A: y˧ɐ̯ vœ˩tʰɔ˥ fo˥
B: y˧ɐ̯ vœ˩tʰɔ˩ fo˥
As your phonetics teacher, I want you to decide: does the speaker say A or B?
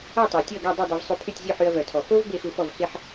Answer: B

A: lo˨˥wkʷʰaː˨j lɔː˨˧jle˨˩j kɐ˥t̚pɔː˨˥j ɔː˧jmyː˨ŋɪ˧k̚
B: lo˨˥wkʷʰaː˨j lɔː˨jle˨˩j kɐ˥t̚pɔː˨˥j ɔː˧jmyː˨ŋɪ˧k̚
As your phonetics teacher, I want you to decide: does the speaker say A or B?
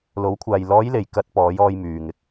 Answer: A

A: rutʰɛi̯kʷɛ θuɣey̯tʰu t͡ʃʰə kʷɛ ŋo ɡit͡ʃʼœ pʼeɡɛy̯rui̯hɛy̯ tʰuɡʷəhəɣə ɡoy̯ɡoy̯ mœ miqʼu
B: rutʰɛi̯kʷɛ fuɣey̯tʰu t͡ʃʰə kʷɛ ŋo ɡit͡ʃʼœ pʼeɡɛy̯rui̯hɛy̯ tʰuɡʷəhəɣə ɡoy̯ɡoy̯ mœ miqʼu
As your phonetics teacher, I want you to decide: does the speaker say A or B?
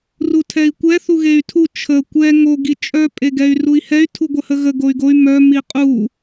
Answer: A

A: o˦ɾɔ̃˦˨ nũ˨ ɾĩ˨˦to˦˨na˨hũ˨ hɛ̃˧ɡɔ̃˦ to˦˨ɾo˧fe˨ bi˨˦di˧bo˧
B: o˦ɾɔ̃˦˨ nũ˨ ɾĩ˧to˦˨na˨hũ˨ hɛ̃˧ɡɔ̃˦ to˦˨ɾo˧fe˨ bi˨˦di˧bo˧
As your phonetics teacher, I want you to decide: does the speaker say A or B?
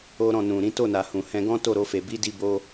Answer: A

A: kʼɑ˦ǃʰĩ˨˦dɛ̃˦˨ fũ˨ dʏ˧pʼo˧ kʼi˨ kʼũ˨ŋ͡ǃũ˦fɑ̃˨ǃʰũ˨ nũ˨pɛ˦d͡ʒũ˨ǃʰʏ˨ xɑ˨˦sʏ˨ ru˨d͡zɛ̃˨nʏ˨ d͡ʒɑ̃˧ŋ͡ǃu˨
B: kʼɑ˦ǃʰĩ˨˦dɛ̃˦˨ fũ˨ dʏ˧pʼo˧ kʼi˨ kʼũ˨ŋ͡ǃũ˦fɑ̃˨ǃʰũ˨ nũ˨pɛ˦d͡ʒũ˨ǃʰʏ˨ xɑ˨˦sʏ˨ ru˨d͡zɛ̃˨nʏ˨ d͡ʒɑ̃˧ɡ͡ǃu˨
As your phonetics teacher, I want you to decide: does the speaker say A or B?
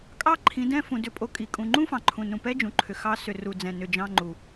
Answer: A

